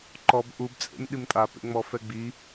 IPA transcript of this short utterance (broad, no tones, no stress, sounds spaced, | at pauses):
ǃ ɔ b ʔ u b t͡sʼ ḛ m ɗ i m tʼ a p ḛ ŋ͡m ɔ f ɛ ɡ͡b i